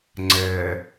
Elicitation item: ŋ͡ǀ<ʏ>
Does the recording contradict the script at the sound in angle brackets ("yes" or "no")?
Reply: yes